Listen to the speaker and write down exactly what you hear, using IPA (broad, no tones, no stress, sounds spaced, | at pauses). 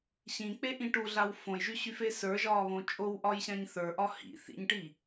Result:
ɕ ĩ k͡p e ʔ ĩ ʈ u ɮ a w f õ j ʒ y ɕ y f e s ə˞ ʒ ɒː β õ t͡ʃʼ o w ʔ ɒ j ɕ ã ɲ θ ə˞ ʔ ɒ h ḭ θ ḭ ɲ ʈ i